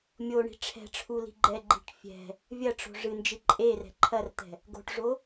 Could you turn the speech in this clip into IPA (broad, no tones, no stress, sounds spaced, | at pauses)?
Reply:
mʲ o ɳ i̤ ʈ͡ʂʰ ɛ̤ ʈ͡ʂʰ u l i̤ ɡ͡ǃ ɛ ɡ͡ǃ i̤ ʈ fʲ ɛ̤ | vʲ ɐ ʈ͡ʂ o̤ ʐ ɨ n d͡ʒ ɨ ǃʼ e r ɛ̤ ǃʰ ɐ r t̪ ɛ̤ | ɡ o̤ ʈ ʐ o